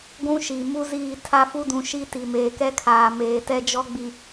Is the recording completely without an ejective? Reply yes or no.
yes